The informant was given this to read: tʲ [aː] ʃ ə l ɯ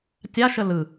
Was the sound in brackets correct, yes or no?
no